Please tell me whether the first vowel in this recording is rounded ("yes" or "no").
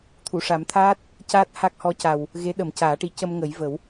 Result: yes